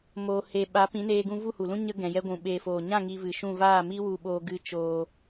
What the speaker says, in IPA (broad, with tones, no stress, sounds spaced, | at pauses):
m oː˧ h e˧ ɓ a˨˦ p ĩ˨˦ n eː˧ ɡ ũ˧ v u˦˨ h u˨ l ũ˦ ɲ ə˧ ɡ ɛ̃˨ j ɛ˧ ɡʷ ũ˨ ɓ eː˨ f oː˨ ɲ ã˦˨ ŋ i˧ v ɨ˨ ʃ ũ˦˨ v aː˦˨ m i˦ w u˧ ɓ oː˧ ɡ ɨ˦ t͡ʃ oː˧